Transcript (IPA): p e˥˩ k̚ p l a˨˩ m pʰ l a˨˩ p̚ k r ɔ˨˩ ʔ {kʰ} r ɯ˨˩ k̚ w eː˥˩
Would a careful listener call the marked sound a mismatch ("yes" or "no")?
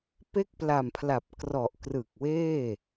yes